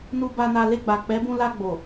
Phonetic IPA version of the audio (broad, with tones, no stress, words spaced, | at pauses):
nu˧ba˧na˧ le˧ɡ͡ba˨ k͡pɛ˨˦bũ˧la˧ ɡ͡bo˨